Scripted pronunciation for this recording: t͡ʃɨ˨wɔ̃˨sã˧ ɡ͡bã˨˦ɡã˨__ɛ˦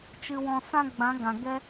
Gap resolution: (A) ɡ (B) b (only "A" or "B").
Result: A